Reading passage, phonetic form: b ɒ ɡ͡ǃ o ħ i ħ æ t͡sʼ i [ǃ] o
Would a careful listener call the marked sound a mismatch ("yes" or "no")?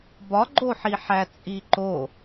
no